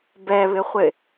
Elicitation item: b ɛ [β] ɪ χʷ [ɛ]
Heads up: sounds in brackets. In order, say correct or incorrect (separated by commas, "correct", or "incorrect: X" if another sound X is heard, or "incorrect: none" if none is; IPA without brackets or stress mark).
correct, incorrect: ɪ